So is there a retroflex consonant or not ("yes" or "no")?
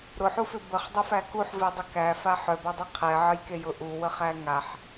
no